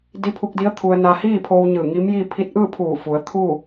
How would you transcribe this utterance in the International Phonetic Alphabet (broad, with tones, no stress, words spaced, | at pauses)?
di˧˥pʰu˧k̚di˧˥ə̯ t̪ʰu˧ə̯ naː˧hiː˥˨pʰoː˧w ɲɯː˧˩ŋi˧˥mji˥˨ pʰi˧˥t̚ ʔɯː˥˨pʰuː˧˩fu˩˧ə̯ t̪ʰuː˥˨